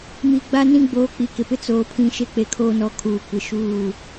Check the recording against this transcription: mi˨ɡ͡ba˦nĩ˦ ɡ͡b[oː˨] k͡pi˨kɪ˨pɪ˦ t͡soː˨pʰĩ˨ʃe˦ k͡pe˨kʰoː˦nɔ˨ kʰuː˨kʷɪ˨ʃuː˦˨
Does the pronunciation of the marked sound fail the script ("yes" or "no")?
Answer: no